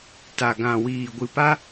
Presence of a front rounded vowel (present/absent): absent